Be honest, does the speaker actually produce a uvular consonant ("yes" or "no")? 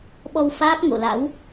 no